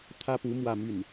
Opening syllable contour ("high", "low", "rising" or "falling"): high